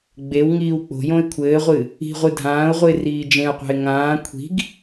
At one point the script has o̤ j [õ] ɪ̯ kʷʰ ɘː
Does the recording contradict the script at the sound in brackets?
no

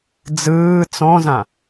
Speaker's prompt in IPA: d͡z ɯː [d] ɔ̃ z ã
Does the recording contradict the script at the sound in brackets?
yes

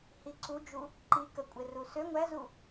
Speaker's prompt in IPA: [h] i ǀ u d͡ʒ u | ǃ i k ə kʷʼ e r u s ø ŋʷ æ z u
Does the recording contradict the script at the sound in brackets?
no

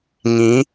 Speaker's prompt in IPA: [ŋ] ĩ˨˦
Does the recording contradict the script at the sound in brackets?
no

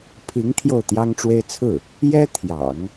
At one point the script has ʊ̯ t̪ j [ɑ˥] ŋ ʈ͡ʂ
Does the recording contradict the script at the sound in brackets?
no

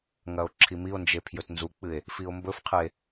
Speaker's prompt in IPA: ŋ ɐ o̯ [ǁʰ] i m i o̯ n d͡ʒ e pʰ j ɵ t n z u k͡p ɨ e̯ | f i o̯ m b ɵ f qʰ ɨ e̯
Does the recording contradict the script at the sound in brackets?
no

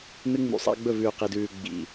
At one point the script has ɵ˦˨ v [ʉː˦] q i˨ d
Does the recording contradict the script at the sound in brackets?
yes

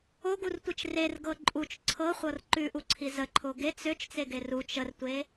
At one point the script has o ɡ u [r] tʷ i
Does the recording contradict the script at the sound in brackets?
no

